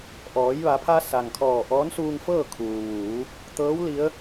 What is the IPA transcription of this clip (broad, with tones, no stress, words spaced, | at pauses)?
ʔɔː˩˧jʋa˩˧pʰa˧ sa˩ŋkʰɔː˧˩ ʔɔː˧˥nsuː˧ŋfɤː˥˨ kʰuː˩ʋuː˩˧ | t̪ɤː˧˥w li˧˥ə̯